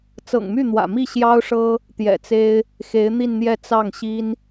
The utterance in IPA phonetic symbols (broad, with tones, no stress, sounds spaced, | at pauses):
t͡s ɤ̰˨˩ ŋ m y˥˩ n̪ w ä̰˨˩ m i˥˩ ɕ j ɑ˥ ʊ̯ ʂ ɤ˥ | t̪ j ɛ̰˨˩ t͡s e˥ ɪ̯ | x e˧˥ ɪ̯ n̪ i˥˧ n n̪ j ɛ˥˧ t͡s ɑ˥˩ ŋ ɕ i˥ n